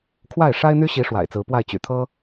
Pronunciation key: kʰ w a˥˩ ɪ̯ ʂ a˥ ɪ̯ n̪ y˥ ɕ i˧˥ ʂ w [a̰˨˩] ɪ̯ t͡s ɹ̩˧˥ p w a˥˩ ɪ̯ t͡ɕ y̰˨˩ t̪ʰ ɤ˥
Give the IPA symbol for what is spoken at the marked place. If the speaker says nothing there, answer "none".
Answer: a̰˨˩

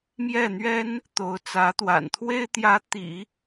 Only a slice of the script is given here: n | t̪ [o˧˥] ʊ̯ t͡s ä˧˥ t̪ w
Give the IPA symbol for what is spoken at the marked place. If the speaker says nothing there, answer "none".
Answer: o˧˥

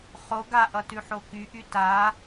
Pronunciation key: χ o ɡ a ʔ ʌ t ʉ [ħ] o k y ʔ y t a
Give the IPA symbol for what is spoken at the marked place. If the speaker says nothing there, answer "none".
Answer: ħ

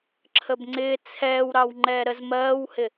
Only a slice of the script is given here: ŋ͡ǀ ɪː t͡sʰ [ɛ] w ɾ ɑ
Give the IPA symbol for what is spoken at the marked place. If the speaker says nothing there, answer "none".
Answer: ɛː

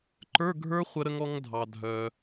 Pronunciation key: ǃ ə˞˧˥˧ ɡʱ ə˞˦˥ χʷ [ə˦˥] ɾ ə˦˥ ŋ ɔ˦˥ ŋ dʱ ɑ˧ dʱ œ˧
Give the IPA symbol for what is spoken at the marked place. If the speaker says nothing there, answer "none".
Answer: ə˦˥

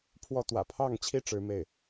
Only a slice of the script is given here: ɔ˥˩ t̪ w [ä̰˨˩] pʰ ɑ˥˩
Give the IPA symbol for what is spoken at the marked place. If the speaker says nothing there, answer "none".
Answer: ä̰˨˩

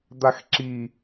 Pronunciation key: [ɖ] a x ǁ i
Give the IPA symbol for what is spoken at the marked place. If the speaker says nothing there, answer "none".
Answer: d̪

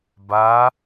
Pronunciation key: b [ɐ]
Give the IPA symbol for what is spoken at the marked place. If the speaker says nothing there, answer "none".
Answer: a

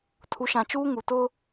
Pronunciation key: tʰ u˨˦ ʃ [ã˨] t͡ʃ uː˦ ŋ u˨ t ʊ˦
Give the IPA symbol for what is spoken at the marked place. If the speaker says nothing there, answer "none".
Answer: ã˨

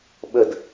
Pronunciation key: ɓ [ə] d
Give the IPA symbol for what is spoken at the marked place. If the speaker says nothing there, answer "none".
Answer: ə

